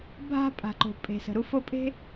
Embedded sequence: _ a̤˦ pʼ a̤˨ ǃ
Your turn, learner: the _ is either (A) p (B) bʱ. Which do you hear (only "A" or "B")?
B